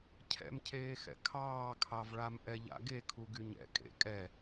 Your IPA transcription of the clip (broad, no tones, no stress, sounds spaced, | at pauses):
cʰ ɛ̰ m cʰ eː x ɛ̰ kʰ ɑː kʰ ɑ v ɭ a m ʔ ɛ ʎ a̰ ɡ e kʰ u ɡ y ɲ ɛ̰ kʼ ḛ kʼ ɛ